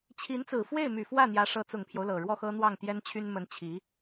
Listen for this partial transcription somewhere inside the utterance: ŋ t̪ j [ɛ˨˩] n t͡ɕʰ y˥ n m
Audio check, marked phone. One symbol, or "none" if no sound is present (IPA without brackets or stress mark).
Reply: ɛ˥